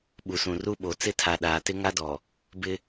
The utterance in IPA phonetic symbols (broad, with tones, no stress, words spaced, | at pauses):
ɓu˨sũ˨ru˦ɓo˨ t͡sɪ˦tʰa˨ ɗaː˨tɪ˦ŋa˦ dɔ˨ | bɪ˦